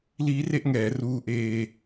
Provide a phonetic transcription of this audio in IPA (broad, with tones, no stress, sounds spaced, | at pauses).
l iː˦˥ r e˦˥ ʔ ŋ ɛː˩˦ r uː˦˥ ʔ eː˧